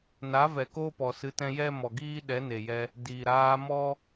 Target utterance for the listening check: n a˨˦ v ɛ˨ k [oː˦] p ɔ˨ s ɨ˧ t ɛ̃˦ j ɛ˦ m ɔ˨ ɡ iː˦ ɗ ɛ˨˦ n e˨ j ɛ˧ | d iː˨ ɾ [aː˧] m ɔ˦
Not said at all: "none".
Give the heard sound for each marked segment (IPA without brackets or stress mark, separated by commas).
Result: oː˦, aː˧